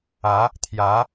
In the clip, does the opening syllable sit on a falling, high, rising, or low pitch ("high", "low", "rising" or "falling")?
rising